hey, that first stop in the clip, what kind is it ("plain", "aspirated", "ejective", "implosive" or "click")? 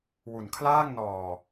aspirated